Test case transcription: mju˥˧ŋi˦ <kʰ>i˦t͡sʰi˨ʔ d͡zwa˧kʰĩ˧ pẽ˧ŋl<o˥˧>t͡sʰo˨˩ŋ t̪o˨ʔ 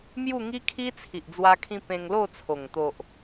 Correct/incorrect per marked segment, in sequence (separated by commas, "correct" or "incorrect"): correct, correct